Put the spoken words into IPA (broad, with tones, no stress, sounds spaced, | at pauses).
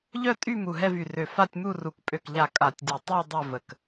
ʎ œ˥˧ tʼ y˥˧ m u˧˩ ɦ ɛ˥˧ v y˧˩ r ø˧˩ f a˥˧ tʲ m u˥˧ r u˧˩ k pʼ ø˧˩ k ʎ a˧˩ kʼ a˧˩ tʲ dʲ ɛ˧˩ tˤ y˥˧ dˤ ø˥˧ v ə˧˩ k